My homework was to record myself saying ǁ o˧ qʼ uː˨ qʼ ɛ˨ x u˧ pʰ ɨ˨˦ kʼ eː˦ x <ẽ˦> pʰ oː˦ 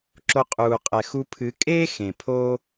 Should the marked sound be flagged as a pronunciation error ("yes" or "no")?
yes